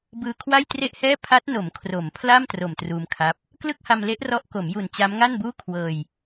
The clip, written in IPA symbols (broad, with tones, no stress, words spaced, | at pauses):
bɯː˧kʰwa˥˩jtre˥˩ʔhɛː˥˩ pʰa˦˥t̚no˩˦m kʰro˩˦mpʰla˥˩m tro˨˩mtruː˧mkʰa˦˥p̚ | klɯ˥˩k̚ha˧mle˦˥ʔ rɔ˦˥ʔko˩˦mju˨˩n t͡ɕa˦˥mŋa˥˩nbuː˥˩ kʰwɤː˧j